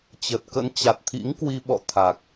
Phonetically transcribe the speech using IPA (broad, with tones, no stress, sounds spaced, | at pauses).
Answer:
t͡ɕ ə˨˩ t̚ k ə̰˧˥ n t͡ɕ a˨˩ t̚ t̪ʰ ḭ˧˥ ŋ k w i˧ ɓ ɔ̰˧˨ t̪ʰ a˨˩ k̚